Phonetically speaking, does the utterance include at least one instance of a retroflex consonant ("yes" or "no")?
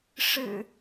yes